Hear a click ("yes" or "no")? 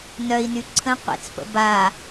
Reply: yes